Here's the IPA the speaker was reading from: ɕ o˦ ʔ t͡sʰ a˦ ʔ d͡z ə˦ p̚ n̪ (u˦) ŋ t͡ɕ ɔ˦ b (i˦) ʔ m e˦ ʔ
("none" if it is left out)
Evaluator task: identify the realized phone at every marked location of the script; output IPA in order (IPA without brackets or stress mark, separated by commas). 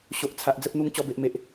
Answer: u˦, e˦